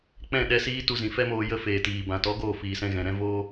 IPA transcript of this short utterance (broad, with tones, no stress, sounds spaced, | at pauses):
k͡p ɛ̃˦˨ ɗ ɛ˧ s iː˦ t u˧ z ĩ˨ f ɛ˦ m oː˧ j ə˦ f eː˨ t iː˨ b ã˨ t ɔ˨˦ ɡ oː˦˨ f iː˨ s ɛ̃˧ ɣ ɛ̃˨ ɾ ɛ̃˦ v oː˦